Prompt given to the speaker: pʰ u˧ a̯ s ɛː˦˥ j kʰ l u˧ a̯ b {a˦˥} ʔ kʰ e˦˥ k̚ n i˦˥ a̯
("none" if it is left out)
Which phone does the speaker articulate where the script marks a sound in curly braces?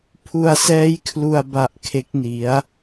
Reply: a˦˥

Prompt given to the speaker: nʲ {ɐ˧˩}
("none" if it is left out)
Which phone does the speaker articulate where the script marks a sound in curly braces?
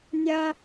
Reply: ɐ˥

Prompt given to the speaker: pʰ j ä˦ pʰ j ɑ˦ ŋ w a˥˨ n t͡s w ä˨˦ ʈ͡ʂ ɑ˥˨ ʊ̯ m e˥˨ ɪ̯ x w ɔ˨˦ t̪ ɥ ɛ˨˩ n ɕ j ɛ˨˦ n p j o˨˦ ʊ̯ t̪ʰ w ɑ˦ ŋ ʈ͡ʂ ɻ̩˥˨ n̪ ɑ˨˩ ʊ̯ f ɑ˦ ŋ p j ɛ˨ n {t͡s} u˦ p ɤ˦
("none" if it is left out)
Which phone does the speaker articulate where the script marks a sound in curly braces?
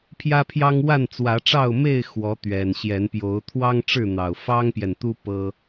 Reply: t̪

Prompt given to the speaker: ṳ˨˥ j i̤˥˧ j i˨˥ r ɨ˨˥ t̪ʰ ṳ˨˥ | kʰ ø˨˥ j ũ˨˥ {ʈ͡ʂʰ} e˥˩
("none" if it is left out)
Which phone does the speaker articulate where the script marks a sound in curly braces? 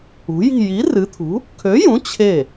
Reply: t͡ɕʰ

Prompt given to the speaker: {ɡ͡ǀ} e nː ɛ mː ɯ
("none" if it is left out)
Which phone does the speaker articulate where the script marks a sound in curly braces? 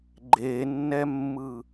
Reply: ɡ͡ǃ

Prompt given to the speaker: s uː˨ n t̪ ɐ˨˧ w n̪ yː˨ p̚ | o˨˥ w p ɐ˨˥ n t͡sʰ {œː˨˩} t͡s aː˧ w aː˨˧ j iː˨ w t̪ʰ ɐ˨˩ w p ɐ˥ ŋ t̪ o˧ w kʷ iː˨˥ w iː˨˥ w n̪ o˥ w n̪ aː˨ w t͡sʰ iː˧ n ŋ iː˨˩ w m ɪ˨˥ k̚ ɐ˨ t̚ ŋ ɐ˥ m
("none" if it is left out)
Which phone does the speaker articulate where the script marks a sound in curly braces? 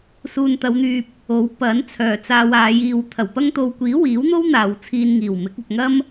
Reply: œː˨˩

